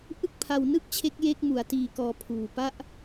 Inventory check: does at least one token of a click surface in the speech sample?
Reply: no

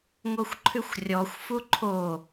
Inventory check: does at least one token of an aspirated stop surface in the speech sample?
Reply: yes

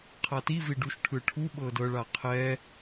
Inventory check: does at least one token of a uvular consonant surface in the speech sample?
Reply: yes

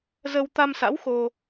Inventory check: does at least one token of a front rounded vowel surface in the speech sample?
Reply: no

